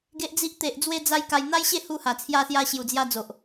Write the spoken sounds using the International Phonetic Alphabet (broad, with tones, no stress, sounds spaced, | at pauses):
ɡ e˦ ʔ d͡z i˦ ʔ t̪ e˨ ʔ d͡z w e˧ d͡z a˦ j k a˧ j n̪ a˦ j ɕ e˥˧ h u˧ h a˨˩ t͡sʰ j a˧ s j a˧ ɕ j u˨˩ d͡z j a˧ d͡z o˨ ʔ